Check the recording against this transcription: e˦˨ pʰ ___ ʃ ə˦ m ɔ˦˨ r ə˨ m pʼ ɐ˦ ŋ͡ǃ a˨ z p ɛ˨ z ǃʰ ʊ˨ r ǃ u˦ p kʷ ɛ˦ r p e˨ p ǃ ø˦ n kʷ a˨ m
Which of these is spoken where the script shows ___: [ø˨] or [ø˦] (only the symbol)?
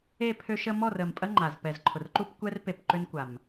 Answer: ø˦